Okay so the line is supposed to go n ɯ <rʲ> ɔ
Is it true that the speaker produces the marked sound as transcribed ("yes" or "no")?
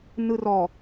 no